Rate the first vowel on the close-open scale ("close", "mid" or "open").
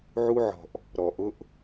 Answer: close